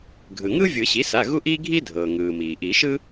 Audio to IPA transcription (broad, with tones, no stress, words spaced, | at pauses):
ɡʱɯ˩ŋɯ˥ vʲɯ˨˩˦ɕi˩˥sa˩˧˩ ɣu˥ʔiː˥ ɡʱi˥ dʱɤː˩ŋɯː˩miː˩ ʔi˨˩˦ʃɯ˥